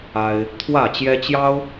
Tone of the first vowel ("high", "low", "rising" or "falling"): high